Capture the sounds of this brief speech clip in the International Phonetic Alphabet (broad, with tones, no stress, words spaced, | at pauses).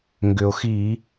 ŋɡʏ˩o̯xi˧˩˧